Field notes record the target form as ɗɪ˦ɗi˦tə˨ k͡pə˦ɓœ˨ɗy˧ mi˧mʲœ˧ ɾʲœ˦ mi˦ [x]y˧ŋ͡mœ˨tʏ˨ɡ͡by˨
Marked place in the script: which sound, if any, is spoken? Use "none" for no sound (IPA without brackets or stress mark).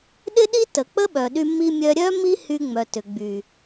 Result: h